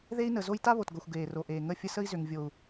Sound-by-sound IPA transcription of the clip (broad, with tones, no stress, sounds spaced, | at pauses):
ð e˦ i̯ n ə˨ z o˦ j t a˦ β o˨ t ɡ o˨ xʷ ɡ eː˨ r o˨ ʔ eː˨ ŋ ə˦˨ fʲ ə˦ s ə˦ i̯ z ʏ˨ ŋ vʲ o˨ u̯